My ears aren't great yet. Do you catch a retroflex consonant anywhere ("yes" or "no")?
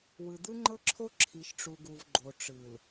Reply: yes